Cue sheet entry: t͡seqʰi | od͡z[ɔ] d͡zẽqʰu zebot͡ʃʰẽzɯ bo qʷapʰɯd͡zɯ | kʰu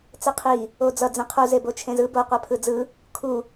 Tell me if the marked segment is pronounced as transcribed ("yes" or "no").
no